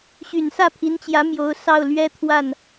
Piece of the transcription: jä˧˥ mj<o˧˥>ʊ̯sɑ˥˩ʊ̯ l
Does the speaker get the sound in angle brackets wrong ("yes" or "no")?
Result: no